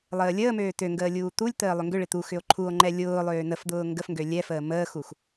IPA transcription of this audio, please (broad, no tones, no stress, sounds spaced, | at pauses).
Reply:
lˠ əː lʲ əː m øː t ø ŋ ɡ əː lʲ uː t̪ u lʲ t̪ əː lˠ ʏ ŋ ɡ ʏ ɭ ɪ t̪ u x ʏ o̯ ǃʰ u o̯ ŋ͡ǃ ɛ lʲ ʊː lˠ øː n ə f d̪ ʊː ŋ ɡ ə f ŋ ɡ ø lʲ ɛ f əː m əː x u x